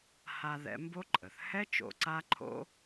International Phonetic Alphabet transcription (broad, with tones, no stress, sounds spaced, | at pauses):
h a˧ ð ɛ̰˧ m b o˥ ǃʼ ə˩ θ h ɛ˥ t͡ʃ o̰˧ ǀ a˥ ǃʰ o̰˥